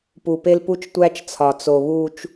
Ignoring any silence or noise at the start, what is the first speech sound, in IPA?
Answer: p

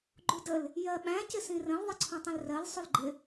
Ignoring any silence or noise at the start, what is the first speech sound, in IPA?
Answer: ɡ͡ǃ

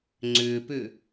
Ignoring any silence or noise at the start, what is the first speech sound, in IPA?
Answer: ŋ͡ǀ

